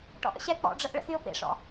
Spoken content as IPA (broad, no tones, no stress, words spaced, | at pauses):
ʈɔ̰ʔə̰ɕɛ k͡pɔ̰ɖ͡ʐəʔ ɭə̰xyʊ̯pḛʂɔ̰